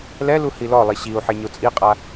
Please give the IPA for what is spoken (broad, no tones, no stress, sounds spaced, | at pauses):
l ɛ l u h i l ɔ lˠ i ɕ i u̯ ħ e ɲ o t͡sʼ i qʼ a